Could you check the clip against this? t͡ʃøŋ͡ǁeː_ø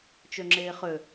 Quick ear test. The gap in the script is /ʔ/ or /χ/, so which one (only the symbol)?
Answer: χ